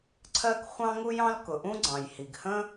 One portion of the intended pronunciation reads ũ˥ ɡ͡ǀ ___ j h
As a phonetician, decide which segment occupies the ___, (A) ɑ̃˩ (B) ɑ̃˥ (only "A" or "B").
A